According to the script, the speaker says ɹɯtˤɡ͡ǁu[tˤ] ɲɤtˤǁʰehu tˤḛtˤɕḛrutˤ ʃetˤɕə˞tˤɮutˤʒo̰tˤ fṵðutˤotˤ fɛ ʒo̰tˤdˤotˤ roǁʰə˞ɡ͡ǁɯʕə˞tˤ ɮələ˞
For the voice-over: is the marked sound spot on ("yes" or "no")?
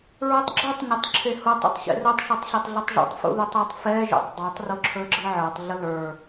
yes